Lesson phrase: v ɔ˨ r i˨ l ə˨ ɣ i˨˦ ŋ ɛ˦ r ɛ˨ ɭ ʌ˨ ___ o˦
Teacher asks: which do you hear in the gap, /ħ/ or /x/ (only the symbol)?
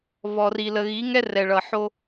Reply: ħ